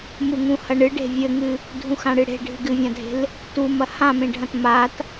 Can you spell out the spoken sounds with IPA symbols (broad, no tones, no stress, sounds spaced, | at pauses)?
m u ŋ ũ h ɐ ɳ ɨ ɖ e̤ vʲ ɘ ŋ ɨ | dʱ ũ x ã ɽ ɨ ɽ e̤ ɖʱ ɨ ɡ ɨ vʲ ã dʱ e̤ l | t u m ɐ h ã m ẽ ɖʱ ɐ̃ t m a t